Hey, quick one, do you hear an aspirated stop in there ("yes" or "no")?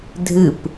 no